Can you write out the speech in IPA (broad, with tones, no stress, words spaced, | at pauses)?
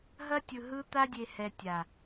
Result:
ɦɐ˦tʲɯ˨ɦɯ˦ t̪a˦dʲe˨hɛ˨ tʲa˨